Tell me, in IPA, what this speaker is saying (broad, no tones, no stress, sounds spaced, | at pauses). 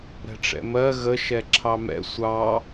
ɾ ɛ̤ ʈ͡ʂ ɛ̰ m ɜ ɣ ə ʃ ɛ ǁʰ ɑ m ɛ̰ sʷ ɑ